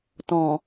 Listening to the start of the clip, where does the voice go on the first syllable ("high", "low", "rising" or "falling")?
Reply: low